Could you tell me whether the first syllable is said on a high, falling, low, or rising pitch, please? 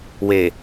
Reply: low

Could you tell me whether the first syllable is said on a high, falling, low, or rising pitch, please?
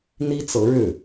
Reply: high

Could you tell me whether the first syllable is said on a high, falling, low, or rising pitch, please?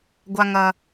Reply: high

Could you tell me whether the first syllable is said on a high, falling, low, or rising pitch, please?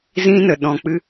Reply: high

